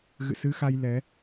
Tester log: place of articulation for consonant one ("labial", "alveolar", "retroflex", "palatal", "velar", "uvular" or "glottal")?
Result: velar